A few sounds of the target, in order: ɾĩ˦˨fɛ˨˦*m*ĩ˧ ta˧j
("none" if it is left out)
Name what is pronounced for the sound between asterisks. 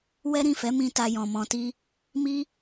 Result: m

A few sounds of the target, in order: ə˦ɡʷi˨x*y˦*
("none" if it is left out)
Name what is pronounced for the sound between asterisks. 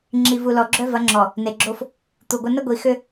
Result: ʏ˦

